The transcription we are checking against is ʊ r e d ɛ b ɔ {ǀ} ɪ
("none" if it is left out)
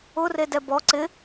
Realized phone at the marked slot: ǀ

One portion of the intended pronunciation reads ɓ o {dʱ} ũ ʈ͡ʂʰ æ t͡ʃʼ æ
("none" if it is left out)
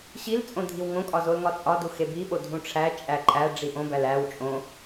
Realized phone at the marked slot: dʱ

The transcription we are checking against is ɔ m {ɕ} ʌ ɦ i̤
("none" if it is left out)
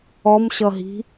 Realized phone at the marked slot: ɕ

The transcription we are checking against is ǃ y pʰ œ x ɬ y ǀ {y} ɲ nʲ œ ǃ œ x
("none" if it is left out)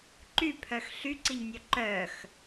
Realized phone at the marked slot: i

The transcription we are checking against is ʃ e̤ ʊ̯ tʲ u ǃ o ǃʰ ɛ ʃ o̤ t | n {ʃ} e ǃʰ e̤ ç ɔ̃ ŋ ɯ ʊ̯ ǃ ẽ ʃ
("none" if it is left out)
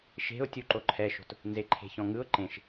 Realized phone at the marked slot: z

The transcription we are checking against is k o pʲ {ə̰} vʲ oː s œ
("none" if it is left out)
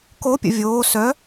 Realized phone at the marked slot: ə̰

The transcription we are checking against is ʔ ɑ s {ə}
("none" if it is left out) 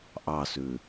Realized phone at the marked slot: ʉ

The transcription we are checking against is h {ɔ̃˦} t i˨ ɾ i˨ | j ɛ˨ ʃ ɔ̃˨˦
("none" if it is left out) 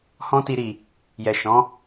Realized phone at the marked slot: ɔ̃˧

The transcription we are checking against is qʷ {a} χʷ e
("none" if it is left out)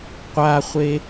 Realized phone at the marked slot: a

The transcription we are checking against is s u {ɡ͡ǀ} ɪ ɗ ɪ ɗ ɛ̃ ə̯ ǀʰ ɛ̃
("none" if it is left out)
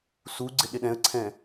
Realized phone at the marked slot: ɡ͡ǀ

